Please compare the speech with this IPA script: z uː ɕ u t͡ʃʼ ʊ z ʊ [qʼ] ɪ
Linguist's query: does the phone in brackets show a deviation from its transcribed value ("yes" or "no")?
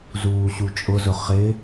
yes